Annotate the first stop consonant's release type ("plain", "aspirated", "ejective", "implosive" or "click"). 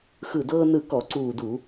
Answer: plain